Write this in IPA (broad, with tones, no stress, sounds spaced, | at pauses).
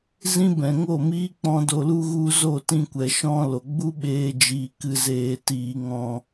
z ĩ˦ b ɛ̃˨ ŋ o˦˨ m iː˦ k͡p ɔ̃˦ d o˧ l u˦ ɣ u˦ z o˦˨ t ĩ˧ kʷ ɛ˨ ʃ ɔ̃˦ l o˨ ɡ͡b u˦ ɓ eː˧ d͡ʒ iː˨ k ɨ˨ z eː˨ t iː˨ ŋ ɔ̃˨